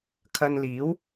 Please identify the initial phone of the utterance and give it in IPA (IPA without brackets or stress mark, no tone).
kʰ